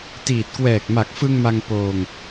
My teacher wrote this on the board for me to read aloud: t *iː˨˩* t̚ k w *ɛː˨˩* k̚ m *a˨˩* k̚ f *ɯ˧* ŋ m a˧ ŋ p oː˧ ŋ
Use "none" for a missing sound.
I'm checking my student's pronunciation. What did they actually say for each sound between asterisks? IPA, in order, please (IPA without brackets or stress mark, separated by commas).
iː˨˩, ɛː˨˩, a˨˩, ɯ˧